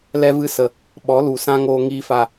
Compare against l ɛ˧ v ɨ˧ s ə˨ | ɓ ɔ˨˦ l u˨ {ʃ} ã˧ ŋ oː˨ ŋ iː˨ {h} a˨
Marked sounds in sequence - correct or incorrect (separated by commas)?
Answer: incorrect, incorrect